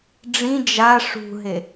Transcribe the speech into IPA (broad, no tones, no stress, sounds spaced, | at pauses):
ɖ͡ʐ ĩ d͡ʒ a ʂ ṳ ɦ e